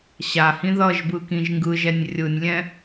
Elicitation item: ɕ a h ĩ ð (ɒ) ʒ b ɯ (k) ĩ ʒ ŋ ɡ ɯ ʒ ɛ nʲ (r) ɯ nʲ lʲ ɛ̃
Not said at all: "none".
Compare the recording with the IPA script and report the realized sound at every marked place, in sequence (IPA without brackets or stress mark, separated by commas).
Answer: ʌ, k, rʲ